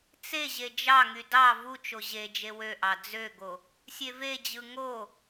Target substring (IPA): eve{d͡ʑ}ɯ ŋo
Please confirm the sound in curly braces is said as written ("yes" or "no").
yes